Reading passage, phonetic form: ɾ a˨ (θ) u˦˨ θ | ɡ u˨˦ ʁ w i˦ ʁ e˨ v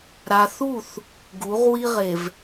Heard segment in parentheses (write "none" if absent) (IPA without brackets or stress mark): θ